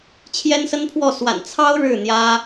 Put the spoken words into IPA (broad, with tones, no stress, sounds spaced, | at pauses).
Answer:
t͡ɕʰ j ɛ˥ n s ə˥ n pʰ w ɔ˥˩ s w a̰˨˩ n t͡sʰ ɑ˥ ʊ̯ ɻ ɻ̩˥˩ n̪ j ä˥